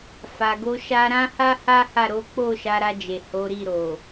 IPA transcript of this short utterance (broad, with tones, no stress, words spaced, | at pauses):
fa˨ɡo˧ʃa˧ ɾã˦ha˦ ha˦ha˦˨ ɾo˨˦k͡po˦˨ ʃa˨˦ɾa˧d͡ʒe˨ ho˨˦ɾi˦˨ɾo˨